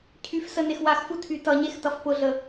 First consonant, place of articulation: palatal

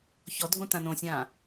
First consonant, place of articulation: palatal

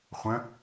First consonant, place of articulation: uvular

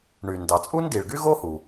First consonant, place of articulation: retroflex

